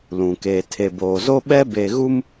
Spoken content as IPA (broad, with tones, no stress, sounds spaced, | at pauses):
l ũ˨ k eː˨ tʰ e˨ b oː˨ z o˦ ɓ ɛ˦ b e˦ ɣ u˦ m